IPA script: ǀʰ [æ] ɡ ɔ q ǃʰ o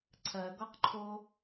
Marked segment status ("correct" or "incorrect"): incorrect